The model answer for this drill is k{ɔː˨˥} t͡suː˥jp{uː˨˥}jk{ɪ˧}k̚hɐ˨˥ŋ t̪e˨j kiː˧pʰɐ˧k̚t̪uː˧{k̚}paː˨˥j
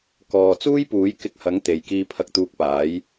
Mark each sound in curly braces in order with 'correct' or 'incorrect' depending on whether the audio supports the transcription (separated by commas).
incorrect, correct, correct, correct